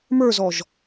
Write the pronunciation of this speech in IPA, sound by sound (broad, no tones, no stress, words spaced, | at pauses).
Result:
mə˞zɔʒ